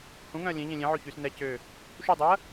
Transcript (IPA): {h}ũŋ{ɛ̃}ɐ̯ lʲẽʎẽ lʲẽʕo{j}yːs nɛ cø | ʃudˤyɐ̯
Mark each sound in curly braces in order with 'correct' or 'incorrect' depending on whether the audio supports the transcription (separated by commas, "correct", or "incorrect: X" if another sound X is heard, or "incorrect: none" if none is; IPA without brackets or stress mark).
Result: correct, incorrect: œ̃, incorrect: ç